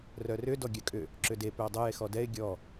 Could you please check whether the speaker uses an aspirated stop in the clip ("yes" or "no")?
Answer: no